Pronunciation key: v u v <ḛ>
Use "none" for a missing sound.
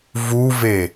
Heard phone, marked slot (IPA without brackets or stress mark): e